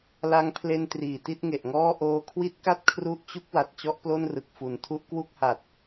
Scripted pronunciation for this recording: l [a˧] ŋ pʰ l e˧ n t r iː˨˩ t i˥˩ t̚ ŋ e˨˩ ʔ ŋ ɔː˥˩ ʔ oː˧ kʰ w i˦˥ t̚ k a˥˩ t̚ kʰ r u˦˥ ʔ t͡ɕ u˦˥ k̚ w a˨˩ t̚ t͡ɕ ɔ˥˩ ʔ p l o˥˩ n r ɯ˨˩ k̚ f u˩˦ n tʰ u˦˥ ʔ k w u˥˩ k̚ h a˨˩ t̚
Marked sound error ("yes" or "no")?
no